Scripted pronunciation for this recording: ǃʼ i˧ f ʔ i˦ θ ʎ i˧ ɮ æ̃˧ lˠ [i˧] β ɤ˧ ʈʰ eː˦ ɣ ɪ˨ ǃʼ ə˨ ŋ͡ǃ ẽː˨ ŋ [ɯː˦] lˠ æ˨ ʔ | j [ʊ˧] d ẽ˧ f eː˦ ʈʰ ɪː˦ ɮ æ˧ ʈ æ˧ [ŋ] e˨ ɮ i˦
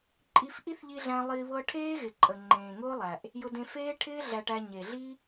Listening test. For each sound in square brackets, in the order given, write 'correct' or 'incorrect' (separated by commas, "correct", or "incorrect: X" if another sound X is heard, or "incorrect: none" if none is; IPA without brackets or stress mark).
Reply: correct, incorrect: ʊː˦, correct, incorrect: ɲ